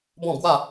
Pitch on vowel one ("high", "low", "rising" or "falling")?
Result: falling